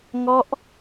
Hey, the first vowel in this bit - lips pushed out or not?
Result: yes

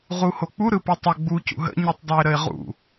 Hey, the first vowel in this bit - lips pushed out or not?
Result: yes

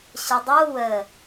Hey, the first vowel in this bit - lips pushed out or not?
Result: no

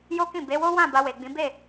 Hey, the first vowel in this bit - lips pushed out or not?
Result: yes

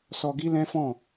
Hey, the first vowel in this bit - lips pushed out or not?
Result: yes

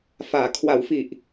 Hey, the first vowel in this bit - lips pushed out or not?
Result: no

